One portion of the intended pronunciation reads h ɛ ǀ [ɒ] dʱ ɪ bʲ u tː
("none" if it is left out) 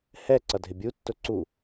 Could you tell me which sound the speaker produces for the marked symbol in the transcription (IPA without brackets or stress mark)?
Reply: ʌ